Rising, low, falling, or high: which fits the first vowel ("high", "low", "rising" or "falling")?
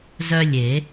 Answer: high